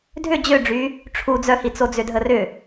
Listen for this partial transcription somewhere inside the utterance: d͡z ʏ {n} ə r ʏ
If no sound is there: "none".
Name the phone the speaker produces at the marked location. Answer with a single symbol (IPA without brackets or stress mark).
dʱ